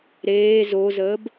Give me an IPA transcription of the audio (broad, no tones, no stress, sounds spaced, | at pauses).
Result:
ɾ eː z o z əː b